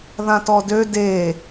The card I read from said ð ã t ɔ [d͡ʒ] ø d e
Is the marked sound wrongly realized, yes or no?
yes